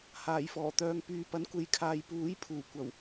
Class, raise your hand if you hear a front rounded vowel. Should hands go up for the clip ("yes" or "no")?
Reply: yes